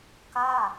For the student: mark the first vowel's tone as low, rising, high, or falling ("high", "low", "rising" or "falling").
falling